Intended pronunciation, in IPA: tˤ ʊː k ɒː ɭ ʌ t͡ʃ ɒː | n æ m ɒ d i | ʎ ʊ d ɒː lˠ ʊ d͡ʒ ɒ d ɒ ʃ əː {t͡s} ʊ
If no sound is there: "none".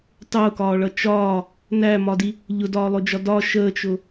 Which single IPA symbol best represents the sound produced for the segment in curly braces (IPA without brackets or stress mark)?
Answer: t͡ʃ